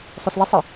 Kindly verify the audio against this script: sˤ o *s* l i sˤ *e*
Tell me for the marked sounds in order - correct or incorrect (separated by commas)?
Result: correct, incorrect